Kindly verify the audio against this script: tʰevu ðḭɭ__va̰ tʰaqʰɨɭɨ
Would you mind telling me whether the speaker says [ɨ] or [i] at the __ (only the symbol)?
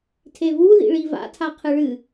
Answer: i